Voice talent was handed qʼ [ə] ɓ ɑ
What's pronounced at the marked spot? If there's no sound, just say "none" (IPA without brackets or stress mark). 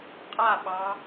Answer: a